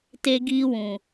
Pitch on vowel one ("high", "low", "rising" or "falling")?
high